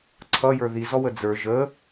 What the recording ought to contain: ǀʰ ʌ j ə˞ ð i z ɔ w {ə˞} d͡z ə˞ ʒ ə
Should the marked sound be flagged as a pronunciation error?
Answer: yes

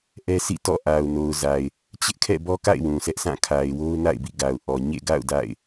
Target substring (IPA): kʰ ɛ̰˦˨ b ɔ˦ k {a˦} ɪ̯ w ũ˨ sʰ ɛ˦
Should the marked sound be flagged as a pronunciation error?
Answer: yes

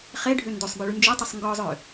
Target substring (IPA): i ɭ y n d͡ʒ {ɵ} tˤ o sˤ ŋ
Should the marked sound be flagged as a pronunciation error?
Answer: yes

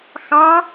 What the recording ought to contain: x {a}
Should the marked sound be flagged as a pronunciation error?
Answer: yes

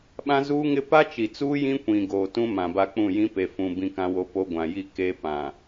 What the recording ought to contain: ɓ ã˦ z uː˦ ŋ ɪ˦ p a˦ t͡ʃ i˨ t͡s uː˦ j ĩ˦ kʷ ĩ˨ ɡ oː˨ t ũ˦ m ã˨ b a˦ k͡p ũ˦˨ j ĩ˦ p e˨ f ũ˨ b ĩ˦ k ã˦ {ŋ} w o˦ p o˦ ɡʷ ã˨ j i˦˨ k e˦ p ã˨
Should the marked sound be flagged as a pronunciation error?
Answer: yes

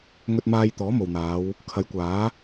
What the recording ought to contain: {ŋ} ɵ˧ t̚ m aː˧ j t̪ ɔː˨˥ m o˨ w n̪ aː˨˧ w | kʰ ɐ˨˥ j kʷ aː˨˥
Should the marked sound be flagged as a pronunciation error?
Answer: no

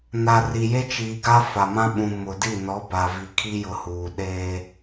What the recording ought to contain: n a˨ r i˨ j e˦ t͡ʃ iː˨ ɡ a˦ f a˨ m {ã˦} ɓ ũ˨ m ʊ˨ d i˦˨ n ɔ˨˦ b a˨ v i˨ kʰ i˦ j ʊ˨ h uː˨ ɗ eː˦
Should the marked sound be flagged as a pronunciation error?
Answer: no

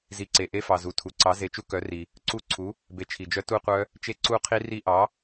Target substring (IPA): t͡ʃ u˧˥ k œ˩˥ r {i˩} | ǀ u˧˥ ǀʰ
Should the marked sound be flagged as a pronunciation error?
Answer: no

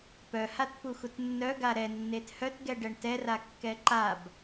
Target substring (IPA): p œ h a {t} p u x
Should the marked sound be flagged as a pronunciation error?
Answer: no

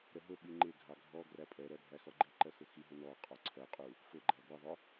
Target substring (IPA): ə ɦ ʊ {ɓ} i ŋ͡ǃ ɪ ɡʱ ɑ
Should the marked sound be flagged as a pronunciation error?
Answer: no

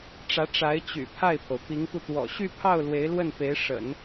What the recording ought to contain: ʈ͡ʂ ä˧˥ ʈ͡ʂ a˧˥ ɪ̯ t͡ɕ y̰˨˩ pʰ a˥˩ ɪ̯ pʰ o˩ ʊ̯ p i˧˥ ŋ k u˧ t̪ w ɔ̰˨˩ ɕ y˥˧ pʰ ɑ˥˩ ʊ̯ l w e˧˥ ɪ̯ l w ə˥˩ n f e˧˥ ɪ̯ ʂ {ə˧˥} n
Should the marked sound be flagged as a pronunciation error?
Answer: yes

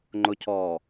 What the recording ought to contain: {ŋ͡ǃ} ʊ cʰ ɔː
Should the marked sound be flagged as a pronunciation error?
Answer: no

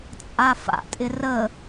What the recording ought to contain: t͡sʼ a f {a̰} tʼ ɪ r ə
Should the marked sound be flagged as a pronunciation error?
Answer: no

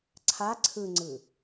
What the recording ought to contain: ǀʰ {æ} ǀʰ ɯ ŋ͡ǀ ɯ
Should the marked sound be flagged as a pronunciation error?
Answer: yes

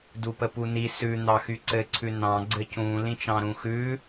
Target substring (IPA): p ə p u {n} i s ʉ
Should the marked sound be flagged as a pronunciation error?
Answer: no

